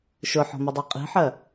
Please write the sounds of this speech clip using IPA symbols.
ʃ ʊ ħ ɔ̤ m ʊ dˤ ɛ qʼ i̤ ħ ɜ

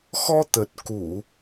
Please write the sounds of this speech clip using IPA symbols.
x ɔ˧ t̪ ə˨˩ t̚ k u˧˩˨

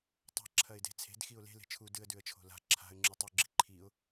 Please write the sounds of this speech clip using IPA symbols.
tˤ a̤ ǁʰ ɐ ɪ̯ d e̤ t͡sʰ e̤ d x i ʊ̯ l e̤ l e̤ t͡ʃʰ u d ɨ ə̯ d ʉ ə̯ t͡ʃʰ o̤ l a̤ ǁʰ a̤ ə̯ ŋ͡ǁ u tˤ u ɡ͡ǁ i ǃʰ i ʊ̯

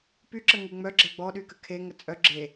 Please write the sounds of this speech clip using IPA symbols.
p y ǁ ə ŋ y ŋ͡m œ ɡ͡ǁ ɛ ɡ͡b ɔ ɗ y k ə kʰ e ŋ ə t͡sʼ œ ɡ͡ǁ e

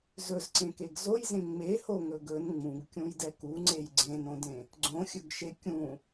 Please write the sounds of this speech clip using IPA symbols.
z ɵ z ǀ ẽ k e ɡ z o j z ẽ ŋ͡m e h o ŋ ɵ ɡ ɵ n ŋ͡m ũ ɡ kʲ ũ j d ɛ k u ŋ͡ǀ e j ɡ͡ǀ ẽ n õ d ẽ | ɡ͡ǀ õ xʲ ɵ ɡ ʃ e kʲ ũ

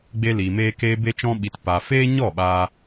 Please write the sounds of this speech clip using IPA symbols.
ɡ͡b e˧ l iː˨ m eː˧ k eː˧ b e˧ t͡ʃ ɔ̃˧ ɓ i˨ t p a˨ f eː˦ ɲ ɔ˦˨ ɓ aː˧

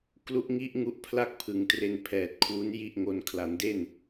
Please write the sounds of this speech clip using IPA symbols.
k l u˦˥ ʔ ŋ i˦˥ ʔ ŋ u˦˥ ʔ pʰ l a˥˩ k̚ pʰ ɯ˩˦ ŋ t r e˧ n pʰ ɛː˨˩ t̚ kʰ w u˦˥ n j i˥˩ ʔ ŋ o˧ n kʰ l a˩˦ n d e˥˩ n

